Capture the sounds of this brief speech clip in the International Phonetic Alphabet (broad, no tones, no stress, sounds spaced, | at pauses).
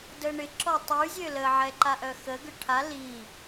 d ə ɳ ɪ ǁ ɔ tˤ y zʲ ø l ə ʕ ɛ ǃ a ʔ œ x ə ɡ ʏ ʈʰ a l i